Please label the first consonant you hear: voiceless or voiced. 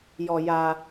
voiced